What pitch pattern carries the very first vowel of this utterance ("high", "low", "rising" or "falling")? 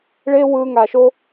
high